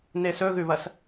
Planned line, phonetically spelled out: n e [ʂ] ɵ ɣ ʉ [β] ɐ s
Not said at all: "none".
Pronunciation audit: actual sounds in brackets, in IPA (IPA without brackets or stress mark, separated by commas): s, β